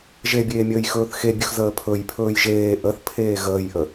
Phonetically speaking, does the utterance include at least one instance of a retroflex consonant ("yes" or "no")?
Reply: no